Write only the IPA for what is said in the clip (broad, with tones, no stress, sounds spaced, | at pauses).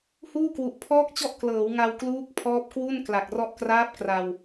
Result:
h uː˥˩ k w u˨˩ ʔ pʰ ɔː˥˩ k̚ t͡ɕ ɔ˥˩ ʔ k l ɤː˩˦ w ŋ a˧ w k l uː˦˥ k̚ pʰ ɔː˦˥ p̚ k w u˥˩ n k l a˨˩ k̚ r ɔ˥˩ ʔ k r aː˦˥ p̚ k r a˧ w